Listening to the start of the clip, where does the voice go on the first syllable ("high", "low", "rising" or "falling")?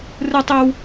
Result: high